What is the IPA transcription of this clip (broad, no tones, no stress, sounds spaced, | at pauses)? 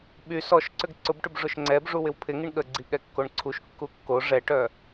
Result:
ɓ y s ɔ ʃ ǀ ʏ ɡ ǀ ʊ b ʈ ʏ b ʐ ʊ ʃ ŋ͡ǀ ɛ b ʐ u w ɪ w pʰ ɪ ŋ i ɳ ɠ ə ɡ͡ǀ i ɠ ɛ kː o ɳ ǀʰ u ʃ kː u kː o ʐ ɛ ʈ œ